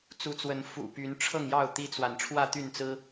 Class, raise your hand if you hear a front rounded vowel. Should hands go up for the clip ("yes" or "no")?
yes